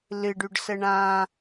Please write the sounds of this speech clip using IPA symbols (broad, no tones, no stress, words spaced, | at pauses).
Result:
lɨɖyɖsə ɳã